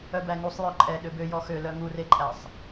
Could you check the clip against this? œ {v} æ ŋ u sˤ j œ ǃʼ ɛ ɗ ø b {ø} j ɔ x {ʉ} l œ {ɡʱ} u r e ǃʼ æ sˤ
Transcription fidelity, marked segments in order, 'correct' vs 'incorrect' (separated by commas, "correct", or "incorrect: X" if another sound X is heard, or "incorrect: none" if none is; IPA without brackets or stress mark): incorrect: b, correct, incorrect: ø, incorrect: ŋ